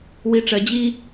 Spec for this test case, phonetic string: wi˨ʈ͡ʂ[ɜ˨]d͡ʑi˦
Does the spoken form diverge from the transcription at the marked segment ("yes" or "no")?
no